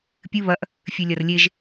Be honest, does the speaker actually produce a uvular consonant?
no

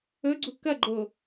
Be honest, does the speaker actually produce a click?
yes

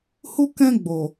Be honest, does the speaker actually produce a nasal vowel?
yes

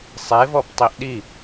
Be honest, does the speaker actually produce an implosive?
yes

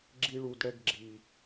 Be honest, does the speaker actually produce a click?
yes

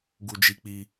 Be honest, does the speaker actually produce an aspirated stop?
no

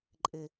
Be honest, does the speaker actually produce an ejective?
yes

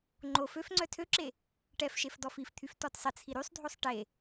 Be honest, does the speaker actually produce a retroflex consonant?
yes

